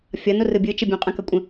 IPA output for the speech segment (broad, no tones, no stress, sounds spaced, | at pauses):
fʲ ʌ n o r ɯ bʲ ɯ t͡ʃ ə bʲ õ qʼ ə̃ k ʌ kʷʼ ə̃